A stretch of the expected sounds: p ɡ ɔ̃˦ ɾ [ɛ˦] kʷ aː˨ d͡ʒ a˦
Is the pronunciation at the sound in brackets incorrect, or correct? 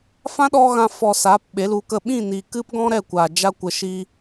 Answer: incorrect